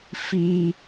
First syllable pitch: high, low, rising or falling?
high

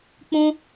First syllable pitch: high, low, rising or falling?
high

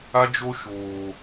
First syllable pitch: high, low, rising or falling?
high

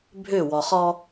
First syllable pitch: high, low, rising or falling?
falling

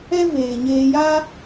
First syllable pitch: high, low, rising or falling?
high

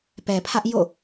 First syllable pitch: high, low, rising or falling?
low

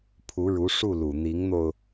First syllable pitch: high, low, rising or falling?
rising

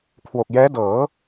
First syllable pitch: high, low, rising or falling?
low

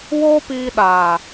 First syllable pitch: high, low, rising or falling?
high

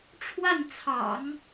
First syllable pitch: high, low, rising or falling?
falling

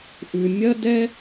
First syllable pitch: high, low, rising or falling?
high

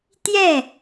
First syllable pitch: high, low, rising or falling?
falling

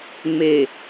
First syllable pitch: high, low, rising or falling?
low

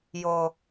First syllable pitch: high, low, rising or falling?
low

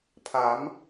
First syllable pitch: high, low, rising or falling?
rising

